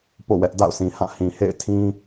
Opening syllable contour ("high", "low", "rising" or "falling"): falling